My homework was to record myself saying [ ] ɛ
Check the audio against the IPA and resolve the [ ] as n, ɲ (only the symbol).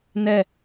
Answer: n